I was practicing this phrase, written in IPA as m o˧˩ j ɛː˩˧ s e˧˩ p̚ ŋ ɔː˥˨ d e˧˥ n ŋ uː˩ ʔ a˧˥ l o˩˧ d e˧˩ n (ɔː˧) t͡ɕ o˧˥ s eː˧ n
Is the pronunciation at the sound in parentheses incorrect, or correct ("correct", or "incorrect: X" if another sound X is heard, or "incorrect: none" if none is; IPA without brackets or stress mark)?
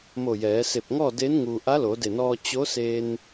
correct